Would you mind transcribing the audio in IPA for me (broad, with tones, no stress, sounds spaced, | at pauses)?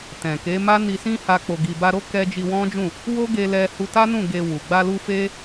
t ɛ̃˨ k e˨˦ m a˦ n i˧ s ĩ˦ h a˧ k͡p o˨ ɡ i˨ b a˧ ɾ o˦ k ɛ˦ d͡ʒ i˧ w ɔ̃˦ d͡ʒ ũ˦˨ | w o˦ ɡ e˧ l ɛ˧ h u˧ t a˦ n ũ˦˨ ɡ e˧ w u˨ ɡ͡b a˧ l u˧ f e˦